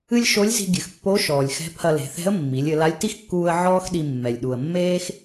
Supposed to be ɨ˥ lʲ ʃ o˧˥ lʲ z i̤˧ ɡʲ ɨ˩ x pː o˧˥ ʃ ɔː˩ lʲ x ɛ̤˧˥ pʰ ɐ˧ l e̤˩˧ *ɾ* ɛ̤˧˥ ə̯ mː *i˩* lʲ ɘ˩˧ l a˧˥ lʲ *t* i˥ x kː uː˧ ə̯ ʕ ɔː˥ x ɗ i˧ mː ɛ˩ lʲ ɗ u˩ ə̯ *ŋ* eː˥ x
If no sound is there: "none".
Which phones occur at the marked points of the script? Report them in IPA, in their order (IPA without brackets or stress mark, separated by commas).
θ, i˩˧, t, mː